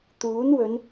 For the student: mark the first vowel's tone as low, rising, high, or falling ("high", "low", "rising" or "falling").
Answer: rising